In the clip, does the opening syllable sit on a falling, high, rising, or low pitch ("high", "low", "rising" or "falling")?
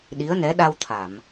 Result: rising